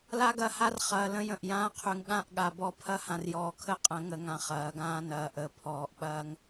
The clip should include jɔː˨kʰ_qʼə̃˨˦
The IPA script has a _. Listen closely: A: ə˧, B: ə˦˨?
B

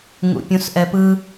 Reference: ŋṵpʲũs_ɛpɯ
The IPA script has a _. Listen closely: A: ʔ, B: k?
A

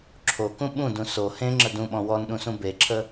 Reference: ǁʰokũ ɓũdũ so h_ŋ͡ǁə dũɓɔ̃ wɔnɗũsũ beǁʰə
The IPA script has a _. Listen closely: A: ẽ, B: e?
A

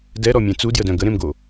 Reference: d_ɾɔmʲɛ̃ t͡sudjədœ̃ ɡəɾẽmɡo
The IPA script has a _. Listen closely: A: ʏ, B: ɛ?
B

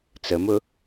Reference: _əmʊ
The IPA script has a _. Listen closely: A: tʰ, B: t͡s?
B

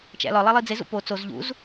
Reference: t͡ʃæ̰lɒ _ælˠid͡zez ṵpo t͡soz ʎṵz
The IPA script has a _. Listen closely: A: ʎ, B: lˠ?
B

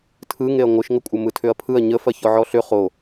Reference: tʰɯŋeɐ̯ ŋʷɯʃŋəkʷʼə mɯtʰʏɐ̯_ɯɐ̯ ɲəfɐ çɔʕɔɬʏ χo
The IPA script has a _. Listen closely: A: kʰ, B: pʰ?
B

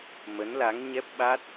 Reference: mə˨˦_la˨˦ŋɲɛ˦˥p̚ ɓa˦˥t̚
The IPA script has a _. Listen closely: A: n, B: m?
A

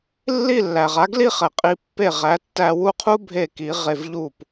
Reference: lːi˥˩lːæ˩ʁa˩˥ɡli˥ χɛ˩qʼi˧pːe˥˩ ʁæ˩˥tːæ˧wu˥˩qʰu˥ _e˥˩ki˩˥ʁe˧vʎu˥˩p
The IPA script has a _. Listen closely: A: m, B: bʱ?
B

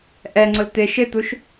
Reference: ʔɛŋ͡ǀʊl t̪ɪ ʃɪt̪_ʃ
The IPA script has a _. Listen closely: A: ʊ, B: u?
B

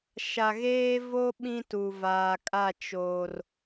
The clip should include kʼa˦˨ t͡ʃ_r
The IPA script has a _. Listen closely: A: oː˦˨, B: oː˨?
B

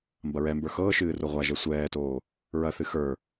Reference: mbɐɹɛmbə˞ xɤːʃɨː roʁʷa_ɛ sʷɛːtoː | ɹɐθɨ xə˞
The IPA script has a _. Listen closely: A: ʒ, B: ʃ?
A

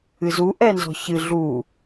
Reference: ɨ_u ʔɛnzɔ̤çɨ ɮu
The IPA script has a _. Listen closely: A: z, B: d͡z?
A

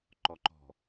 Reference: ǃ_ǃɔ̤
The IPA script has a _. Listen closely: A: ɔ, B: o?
A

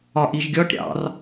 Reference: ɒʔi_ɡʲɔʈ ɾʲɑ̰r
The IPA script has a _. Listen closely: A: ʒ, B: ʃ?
A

